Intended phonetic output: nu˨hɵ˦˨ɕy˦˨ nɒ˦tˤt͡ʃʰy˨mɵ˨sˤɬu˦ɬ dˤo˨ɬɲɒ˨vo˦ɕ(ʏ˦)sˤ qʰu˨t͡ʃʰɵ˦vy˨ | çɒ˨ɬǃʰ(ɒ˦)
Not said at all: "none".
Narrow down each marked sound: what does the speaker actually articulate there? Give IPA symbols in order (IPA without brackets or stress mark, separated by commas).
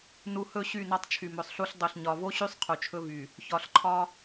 y˦, ɒ˦